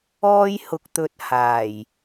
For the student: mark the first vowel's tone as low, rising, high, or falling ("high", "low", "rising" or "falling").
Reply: high